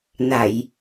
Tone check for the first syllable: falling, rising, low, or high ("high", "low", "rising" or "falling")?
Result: low